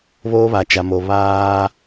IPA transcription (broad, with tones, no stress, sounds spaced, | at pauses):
β oː˦ β a˨ t͡ʃ a˨ m o˨ β aː˦